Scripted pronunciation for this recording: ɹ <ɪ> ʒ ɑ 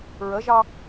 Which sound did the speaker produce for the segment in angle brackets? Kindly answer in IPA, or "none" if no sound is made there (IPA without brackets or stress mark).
ə